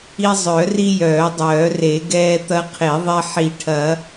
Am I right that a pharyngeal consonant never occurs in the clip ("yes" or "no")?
no